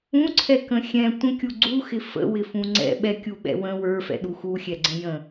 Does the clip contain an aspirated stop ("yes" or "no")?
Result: yes